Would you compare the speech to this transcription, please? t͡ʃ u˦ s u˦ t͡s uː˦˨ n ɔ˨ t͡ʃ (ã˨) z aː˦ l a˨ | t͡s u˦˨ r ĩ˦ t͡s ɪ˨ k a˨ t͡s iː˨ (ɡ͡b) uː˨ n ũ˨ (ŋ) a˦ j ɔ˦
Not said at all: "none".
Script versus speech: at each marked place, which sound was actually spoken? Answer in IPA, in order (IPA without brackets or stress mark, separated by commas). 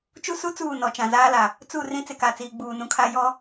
ã˨, ɡ͡b, kʰ